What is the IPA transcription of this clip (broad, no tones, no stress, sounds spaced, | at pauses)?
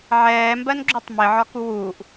ʕ ɛː m b ɜ n ɡ͡ǁ u tˤ m ɪ ʕ ɒ k u w uː ʔ